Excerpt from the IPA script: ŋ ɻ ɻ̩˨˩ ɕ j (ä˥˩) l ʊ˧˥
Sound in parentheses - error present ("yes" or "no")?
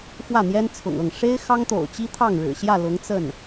no